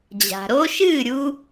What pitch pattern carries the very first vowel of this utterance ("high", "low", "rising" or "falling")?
low